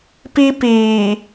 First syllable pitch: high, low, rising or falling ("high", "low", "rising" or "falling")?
high